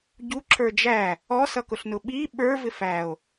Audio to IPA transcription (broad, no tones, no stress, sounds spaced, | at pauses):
ɟ u ǁʰ ə˞ d͡ʒ æ | ɔ s ʌ k ʊ ɬ n ʊ ɓ i ɓ ə˞ v ɪ f æ o̯